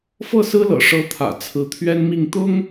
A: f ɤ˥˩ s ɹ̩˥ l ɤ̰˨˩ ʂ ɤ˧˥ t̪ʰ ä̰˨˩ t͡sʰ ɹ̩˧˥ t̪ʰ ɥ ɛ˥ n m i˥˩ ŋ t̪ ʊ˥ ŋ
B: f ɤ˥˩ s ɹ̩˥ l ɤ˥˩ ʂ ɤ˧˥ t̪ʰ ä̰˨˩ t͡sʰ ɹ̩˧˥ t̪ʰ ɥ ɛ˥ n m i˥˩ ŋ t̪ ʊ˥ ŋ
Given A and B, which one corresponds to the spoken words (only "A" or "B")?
A